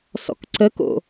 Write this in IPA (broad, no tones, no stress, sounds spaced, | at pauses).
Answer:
s ɔ̰ k ǀ ə k o̰